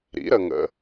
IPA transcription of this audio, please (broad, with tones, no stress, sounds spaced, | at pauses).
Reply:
ɾ ḭ˩˥ ɾ ə˨ ŋ ə̰˨